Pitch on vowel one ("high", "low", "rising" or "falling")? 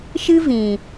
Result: high